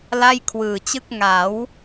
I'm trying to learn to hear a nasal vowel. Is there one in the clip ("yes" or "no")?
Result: no